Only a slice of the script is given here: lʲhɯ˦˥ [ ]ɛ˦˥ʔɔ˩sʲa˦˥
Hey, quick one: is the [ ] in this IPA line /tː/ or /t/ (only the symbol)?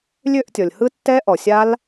tː